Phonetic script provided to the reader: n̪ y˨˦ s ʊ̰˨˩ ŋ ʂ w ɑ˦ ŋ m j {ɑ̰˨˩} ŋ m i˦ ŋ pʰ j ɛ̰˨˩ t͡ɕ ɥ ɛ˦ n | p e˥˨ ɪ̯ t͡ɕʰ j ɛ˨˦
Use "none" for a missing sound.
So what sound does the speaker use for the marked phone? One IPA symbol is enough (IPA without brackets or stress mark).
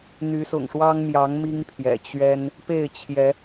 ɑ˨˦